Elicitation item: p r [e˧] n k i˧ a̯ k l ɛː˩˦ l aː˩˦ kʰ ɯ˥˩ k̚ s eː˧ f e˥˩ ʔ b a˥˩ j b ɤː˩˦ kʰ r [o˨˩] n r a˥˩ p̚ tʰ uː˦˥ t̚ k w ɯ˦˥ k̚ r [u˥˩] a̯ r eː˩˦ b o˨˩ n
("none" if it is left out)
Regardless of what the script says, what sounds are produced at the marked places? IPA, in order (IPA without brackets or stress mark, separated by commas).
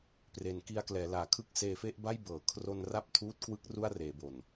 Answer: e˩˦, o˧, u˥˩